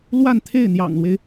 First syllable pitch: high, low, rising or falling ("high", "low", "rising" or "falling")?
falling